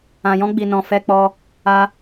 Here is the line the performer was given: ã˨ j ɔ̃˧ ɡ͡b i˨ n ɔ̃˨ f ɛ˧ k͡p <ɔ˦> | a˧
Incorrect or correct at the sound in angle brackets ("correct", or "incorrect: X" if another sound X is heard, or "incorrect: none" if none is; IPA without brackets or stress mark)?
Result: incorrect: ɔ˧